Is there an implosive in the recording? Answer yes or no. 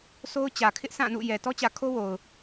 no